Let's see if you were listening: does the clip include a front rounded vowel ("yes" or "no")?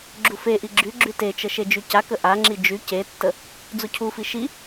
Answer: yes